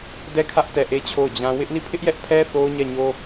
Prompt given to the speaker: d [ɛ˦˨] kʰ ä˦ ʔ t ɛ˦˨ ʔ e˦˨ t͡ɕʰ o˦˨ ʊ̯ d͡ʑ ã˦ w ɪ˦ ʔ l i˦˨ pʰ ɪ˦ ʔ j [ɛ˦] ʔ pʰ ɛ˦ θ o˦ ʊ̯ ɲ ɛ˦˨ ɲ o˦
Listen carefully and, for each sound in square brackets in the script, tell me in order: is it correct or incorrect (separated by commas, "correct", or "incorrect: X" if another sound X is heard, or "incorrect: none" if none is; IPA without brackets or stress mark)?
correct, correct